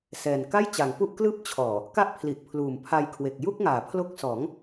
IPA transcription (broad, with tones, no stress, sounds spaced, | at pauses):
s ɛː˨˩ n k a˥˩ j t͡ɕ a˩˦ ŋ p u˥˩ ʔ k l ɯː˦˥ p̚ t͡ɕʰ ɔː˨˩ | k a˥˩ ʔ pʰ l i˨˩ ʔ pʰ l uː˨˩ m pʰ a˧ j kʰ w e˨˩ k̚ j u˥˩ k̚ ŋ aː˩˦ pʰ l o˦˥ k̚ s ɔː˩˦ ŋ